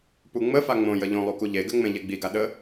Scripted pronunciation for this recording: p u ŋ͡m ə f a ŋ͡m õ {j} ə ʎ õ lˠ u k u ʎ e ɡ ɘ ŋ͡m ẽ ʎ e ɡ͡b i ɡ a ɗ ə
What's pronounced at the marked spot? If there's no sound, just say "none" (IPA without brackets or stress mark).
j